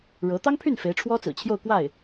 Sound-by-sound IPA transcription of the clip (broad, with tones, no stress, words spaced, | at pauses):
ɻɤ˧˥ t̪ɑ˥ŋpʰy˥˩n fe˧˥ɪ̯ʈ͡ʂʰwɔ˥t͡sɹ̩˨˩t͡ɕʰjo˥˧ʊ̯ kwa˥˩ɪ̯